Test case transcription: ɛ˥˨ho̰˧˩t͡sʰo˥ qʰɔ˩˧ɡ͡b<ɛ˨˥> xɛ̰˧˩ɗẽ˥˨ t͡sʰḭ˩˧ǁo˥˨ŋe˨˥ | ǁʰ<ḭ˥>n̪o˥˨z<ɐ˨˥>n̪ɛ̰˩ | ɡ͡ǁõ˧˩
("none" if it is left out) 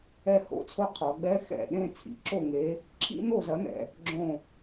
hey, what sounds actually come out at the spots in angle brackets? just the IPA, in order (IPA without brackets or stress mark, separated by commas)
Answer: ɛ˥, ḭ˥, ɐ˨˥